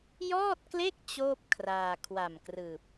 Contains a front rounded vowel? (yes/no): no